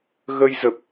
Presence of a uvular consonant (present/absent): absent